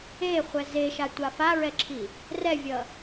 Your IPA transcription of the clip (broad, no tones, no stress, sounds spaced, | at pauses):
e χʷ ɛ z e ʃ a tʷ a f a ɹ ɛ ǁʰ i | r ɛ vʲ ʌ